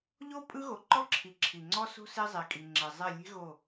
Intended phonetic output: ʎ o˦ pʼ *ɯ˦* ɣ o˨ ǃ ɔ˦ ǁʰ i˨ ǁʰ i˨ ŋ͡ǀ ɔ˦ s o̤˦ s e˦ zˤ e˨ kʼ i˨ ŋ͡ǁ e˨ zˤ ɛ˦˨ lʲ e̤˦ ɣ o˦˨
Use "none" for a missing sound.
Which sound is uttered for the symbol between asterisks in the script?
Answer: ɯ˦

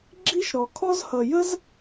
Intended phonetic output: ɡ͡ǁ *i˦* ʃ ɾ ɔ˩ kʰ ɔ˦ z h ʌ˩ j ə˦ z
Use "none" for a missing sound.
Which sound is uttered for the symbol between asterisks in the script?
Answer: i˦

